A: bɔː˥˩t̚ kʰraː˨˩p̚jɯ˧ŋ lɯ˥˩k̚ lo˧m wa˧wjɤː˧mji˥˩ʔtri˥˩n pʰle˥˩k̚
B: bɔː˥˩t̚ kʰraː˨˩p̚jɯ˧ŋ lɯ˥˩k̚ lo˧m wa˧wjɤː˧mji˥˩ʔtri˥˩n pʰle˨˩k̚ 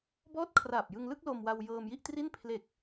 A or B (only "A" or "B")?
B